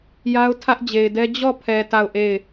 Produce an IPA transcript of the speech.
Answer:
j a˦ ʊ̯ tʰ ä˦ ʔ d͡ʑ e˨ ɪ̯ d ɛ˦ d͡ʑ ɔ˦˨ pʰ ɛ˨ t a˦˨ ʊ̯ ʔ e˦˨ ɪ̯

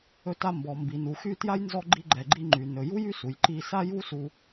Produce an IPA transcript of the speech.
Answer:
ɵ˧ t a˧ m b ɔ˩ m b i˩ n u˩ x y˧ t j a˥ j n z ɔ˧ ɡ͡ǃ i˧ ɡ͡ǃ ɛ˩ ɡ͡ǃ i˧ ŋ͡ǃ y˩ n ɵ˩ j u˥ j y˥ s u˩ j ǃ i˧ s a˥ j u˥ s u˧

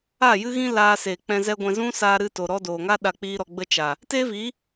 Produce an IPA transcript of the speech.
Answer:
a˦˨ j ɨ˦ ɣ ĩ˦ l aː˧ s e˨ k͡p ɛ̃˧ z ɛ˦ ɡʷ ɛ̃˧ z ũ˦ s aː˧ ɾ ɨ˧ t o˨ ɾ ɔ˧ d oː˨ ŋ a˦ ɗ a˧ k͡p iː˦ ɾ ɔ˧ ɡ͡b ə˧ t͡ʃ a˨ | t eː˦ v i˨˦

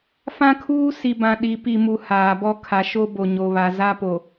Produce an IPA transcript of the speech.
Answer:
f ã˦ kʰ uː˦ s i˨ b ã˨ ɗ i˨˦ p i˨ m u˨ h aː˨ b ɔ˦ kʰ a˨ ʃ o˦ b o˨ ɲ o˨ β a˨ z a˦ p o˨

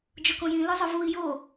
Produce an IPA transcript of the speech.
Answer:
d͡ʒ ʊ k õ j ĩ l ʊ zˤ ʊ v u i̯ j o

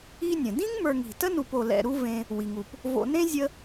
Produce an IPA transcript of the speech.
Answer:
i˦ nʲ ə̃˩ d ĩ˥ ŋ m ə˞˨ ŋ i̤˩ t ə˥ n u˨ p o˨ l ɛ̰˨ ɾ u˦ v ẽ˨ | w i˩ ŋ u˩ p | v o̰˨ n ẽ˥ zʲ ə˦

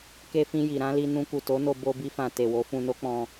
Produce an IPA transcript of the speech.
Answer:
k e˧ f ĩ˧ j i˨ ɾ ã˨˦ l i˧ n ũ˧ k u˨ t o˨˦ n o˧ b o˦ b i˦ f ã˧ t e˨ w o˨˦ f ũ˧ n o˦ k͡p ɔ̃˧

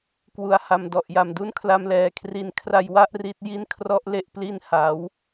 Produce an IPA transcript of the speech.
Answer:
k w u˩˦ a̯ h a˨˩ m d ɔ˨˩ ʔ j a˨˩ m d u˥˩ n kʰ l a˧ m l ɛː˨˩ kʰ r i˧ n kʰ r a˧ j w a˥˩ ʔ r i˦˥ t̚ j i˥˩ n kʰ r ɔ˦˥ ʔ l e˦˥ ʔ p l i˧ n h a˩˦ w

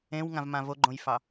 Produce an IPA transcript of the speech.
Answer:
ẽ w ŋ ã v m ã v o ɡ͡ǃ õ j f ɑ

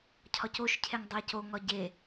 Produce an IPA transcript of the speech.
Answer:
cʰ ɒ c o ʃ cʰ e ŋ dˤ æ c o ŋ ɒ ɟ e

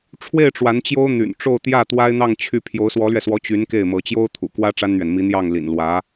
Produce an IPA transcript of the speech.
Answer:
ʈ͡ʂʰ w e˥˩ ɪ̯ ʈ͡ʂ w a˧˥ n t͡ɕ j o˥ ʊ̯ n̪ y̰˨˩ n ʈ͡ʂ o˥˧ ʊ̯ t̪ j ä˥˩ t̪ w a˥ ɪ̯ n̪ ɑ˥˧ ŋ t͡ɕʰ y˥˩ pʰ j o˧˥ ʊ̯ s w ɔ˧˥ l ɥ ɛ˧ s w ɔ˧˥ t͡ɕ y˧˥ n k e˥˩ ɪ̯ m ɤ˧˥ t͡ɕ j o˥ ʊ̯ t̪ʰ ṵ˨˩ k w ä˥ ʈ͡ʂ a˥ n n̪ ɥ ɛ˨ n m i˧˥ n̪ j ɑ˥˩ ŋ l ḭ˨˩ n l w ä˧˥

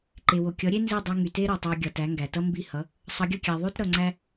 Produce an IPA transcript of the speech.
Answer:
ǃ e˩ w o˩ kʲ ʌ˩˥ ɾʲ e˥ n z i˥˩ dˤ y˧ ŋ y˩ t e˥ ɾ o˩ tˤ æ˧ ɡʲ ʌ˩ t æ˩˥ ŋ ɡ æ˩ t ʌ˥ m b i˥˩ h ʌ˩˥ | sˤ ʌ˩˥ ɡʲ ʌ˥˩ kʲ æ˩ ðˤ ʉ˥ t ɾ ʌ˩ ŋ͡ǀ æ˧

